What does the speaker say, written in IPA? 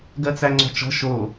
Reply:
ɡ ɜ t͡s æ ŋ͡ǀ ɔ̤ t͡ʃ ɔ̤ ʃ o

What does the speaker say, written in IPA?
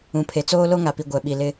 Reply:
ũ˨ pʰ e˨ t͡s oː˦ l o˦ ŋ a˨ p i˨ ɡʷ ɛ˨ ɓ i˨ l ɪ˦

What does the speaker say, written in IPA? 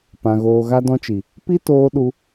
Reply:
p ã˨ ɣ oː˨ ɣ a˧ d ɔ̃˧ t͡ʃ i˨ | p i˦ t oː˧ ɗ u˧

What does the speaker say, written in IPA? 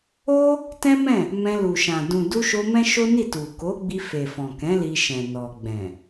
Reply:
o˦ | t ɛ̃˦ m ɛ̃˦˨ | m ɛ̃˧ l u˨ ʃ ã˨ d ũ˨ d u˧ ʃ o˧ m ɛ̃˦ ʃ o˦ n i˦˨ t u˨ k o˨˦ ɡ͡b i˧ f e˨ f ɔ̃˨ k ɛ̃˨˦ l i˧ ʃ ɛ̃˨ n ɔ˨ ɡ͡b ɛ̃˨

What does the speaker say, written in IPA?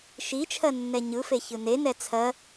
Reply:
ʃ i t͡ʃʰ ɜ nː ɛ ɲ ɯ f e ç ɯ n e n ɛ t͡sʰ ɜ

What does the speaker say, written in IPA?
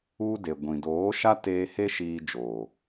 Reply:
u˦ d e˨ ɡʷ ĩ˨ d oː˨˦ ʃ a˦ t eː˧ h e˦ ʃ iː˧ d͡ʒ oː˨

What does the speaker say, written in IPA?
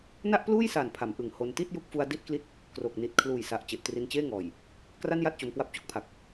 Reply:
n a˥˩ ʔ p l uː˥˩ j s aː˨˩ n pʰ a˩˦ m ʔ ɯ˨˩ ŋ h o˧ n t i˥˩ t̚ j u˦˥ k̚ f u˧ a̯ d i˥˩ t̚ k l i˥˩ t̚ | k r o˨˩ k̚ n i˨˩ t̚ kʰ l uː˨˩ j s a˨˩ ʔ t͡ɕ e˨˩ ʔ t r i˧ n t͡ɕ eː˥˩ ŋ ɔː˨˩ j | k r a˥˩ n j a˥˩ t̚ t͡ɕ o˧ m k w a˦˥ p̚ t͡ɕ o˥˩ k̚ pʰ a˨˩ k̚

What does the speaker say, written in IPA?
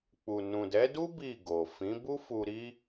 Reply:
k͡p u˨ n ũ˨ d ɛ˨˦ d u˦ b i˦˨ ɡ o˨ f ĩ˨˦ b u˦ f u˧ ɾ i˦

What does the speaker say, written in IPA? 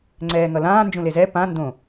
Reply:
ŋ͡ǀ ɛː ŋ ʌ l ãː n d͡ʒ ũ l e z ɛ p ã n d õ

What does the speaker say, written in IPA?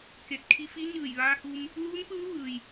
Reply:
k e˧˩ t̚ kʰ i˧ f i˧˥ ɲ ɯː˧˩ j ʋ aː˧ h u˧ m | l uː˧˥ n p ɯː˧˥ ʋ ɯː˩ j

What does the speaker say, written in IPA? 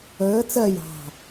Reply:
əː t͡s ɜ j ɑ̤

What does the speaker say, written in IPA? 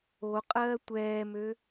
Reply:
o qʼ ɜː tʷ ɛː m ø

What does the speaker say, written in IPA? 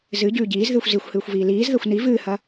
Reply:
z ɨ ɟ ʉː ɟ iː z ð ɨː xʷ z i xʷ h ɨː xʷ v iː l iː z ð ɐ xʷ n i v ɨː h ɐ

